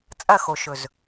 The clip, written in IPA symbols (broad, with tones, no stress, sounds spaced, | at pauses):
t͡sʼ ɐ˦˨ x o˨ ʃ ɵ˨ z